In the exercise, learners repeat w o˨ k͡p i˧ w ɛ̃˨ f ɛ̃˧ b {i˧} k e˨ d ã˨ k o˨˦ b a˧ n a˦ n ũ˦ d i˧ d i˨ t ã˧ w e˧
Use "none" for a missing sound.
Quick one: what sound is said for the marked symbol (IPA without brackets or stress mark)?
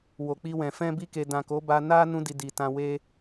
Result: i˧